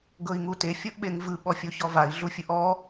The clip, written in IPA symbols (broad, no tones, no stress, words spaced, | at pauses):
ɡɤi̯ŋute fʲɤʔɓeŋvɯ ɓɔfʲoçɔvai̯ ɮufʲɯʔɔ